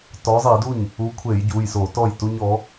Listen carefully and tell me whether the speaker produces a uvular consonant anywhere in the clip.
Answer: no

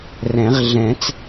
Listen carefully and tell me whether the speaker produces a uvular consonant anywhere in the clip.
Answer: yes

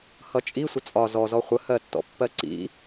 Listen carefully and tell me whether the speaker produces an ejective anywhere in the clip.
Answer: yes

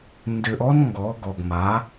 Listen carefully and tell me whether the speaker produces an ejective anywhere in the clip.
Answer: no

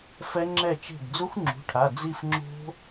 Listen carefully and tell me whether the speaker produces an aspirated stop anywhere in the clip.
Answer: yes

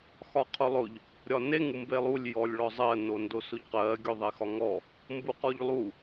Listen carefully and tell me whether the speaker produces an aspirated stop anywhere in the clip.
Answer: yes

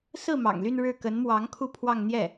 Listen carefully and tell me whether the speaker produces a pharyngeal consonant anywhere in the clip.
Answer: no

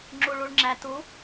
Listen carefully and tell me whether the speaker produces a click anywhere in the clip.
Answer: yes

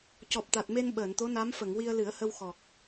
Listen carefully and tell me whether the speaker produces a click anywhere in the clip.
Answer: no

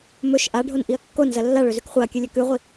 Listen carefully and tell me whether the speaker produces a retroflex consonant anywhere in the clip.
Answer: yes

